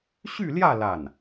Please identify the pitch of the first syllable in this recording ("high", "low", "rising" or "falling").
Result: falling